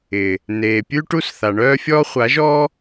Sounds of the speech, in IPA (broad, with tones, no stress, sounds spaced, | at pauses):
ɪ˨ | n eː˨ pʲ ʉ˦ ʈ u˦ s θ a˨ ɳ œː˦ fʲ ɔː˦ χʷ a˨˦ ʒ ɔː˦